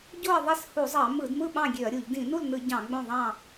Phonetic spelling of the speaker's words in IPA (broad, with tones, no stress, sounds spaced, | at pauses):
ɟ o˥˨ ɐ̯ ðˤ e˥˨ s h u˧˩˧ zˤ ɑ˧˩˧ m ɯ˧˩˧ d m ɯ˥˨ ɓ ɑ̃˥˨ ɡʲ ø˧˩˧ ɐ̯ ɾʲ u˧˩˧ ʎ d ĩ˧˩˧ n u˥˨ l n ɯ˧˩˧ ɟ ɑ̃˧˩˧ ɡ͡b õ˥˨ ðˤ ɑ̃˥˨